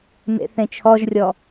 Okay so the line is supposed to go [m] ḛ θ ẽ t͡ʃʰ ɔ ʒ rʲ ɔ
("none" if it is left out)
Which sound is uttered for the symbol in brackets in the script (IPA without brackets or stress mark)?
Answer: m